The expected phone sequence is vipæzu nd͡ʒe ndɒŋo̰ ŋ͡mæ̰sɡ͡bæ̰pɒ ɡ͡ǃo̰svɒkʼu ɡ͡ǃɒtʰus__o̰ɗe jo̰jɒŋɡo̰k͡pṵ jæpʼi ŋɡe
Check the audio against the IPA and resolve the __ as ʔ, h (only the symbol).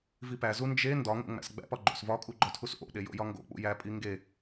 ʔ